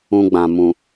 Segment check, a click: absent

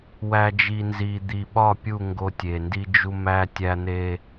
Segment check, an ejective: absent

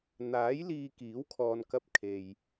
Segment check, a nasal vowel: absent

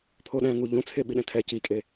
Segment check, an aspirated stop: present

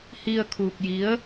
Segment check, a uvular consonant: absent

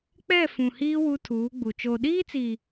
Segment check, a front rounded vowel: absent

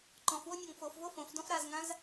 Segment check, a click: present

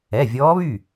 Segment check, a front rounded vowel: present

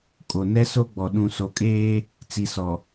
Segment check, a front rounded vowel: absent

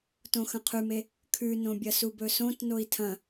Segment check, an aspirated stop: present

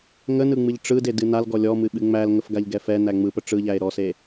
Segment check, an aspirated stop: absent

